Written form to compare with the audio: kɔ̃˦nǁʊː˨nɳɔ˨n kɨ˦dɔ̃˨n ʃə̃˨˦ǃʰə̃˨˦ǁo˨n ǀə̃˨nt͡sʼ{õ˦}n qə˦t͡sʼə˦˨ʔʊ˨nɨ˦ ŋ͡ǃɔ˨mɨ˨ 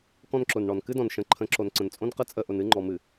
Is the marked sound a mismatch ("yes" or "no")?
no